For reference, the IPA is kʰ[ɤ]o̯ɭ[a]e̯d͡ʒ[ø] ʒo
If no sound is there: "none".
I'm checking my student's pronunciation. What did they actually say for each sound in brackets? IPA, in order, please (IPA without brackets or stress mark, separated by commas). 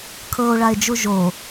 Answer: ɤ, a, u